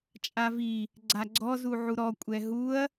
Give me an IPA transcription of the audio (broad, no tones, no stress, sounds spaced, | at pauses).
t͡ʃʼ a v i | ɡ͡ǀ a ɡ͡ǀ ɔ z u ʕ u ɾ ɔ kʷʼ ɛ ɦ u ɐ̯